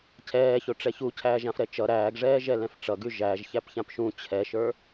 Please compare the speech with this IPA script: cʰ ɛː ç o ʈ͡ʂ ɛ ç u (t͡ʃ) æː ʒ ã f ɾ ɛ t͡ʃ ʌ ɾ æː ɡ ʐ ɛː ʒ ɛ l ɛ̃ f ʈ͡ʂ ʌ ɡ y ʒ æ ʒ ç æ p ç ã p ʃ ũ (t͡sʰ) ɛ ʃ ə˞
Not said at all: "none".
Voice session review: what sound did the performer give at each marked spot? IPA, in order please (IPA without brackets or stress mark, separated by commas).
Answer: cʰ, t͡ɕʰ